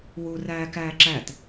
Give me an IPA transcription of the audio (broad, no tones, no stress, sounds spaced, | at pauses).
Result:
w u r æː k æː ǁ æ t